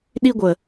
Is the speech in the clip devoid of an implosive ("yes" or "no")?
no